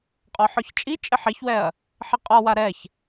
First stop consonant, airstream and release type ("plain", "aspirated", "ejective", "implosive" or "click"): ejective